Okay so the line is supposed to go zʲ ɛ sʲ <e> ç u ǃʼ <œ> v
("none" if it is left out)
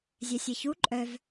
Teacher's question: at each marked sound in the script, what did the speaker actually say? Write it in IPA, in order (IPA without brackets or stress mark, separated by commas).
e, œ